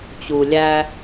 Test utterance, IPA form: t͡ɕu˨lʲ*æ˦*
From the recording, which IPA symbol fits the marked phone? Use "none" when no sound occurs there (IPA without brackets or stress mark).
æ˦